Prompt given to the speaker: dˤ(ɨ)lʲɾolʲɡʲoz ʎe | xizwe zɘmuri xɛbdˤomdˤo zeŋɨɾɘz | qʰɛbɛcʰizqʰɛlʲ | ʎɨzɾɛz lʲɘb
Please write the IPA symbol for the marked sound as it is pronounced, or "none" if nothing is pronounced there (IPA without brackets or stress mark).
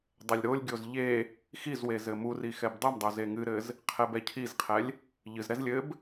ɛ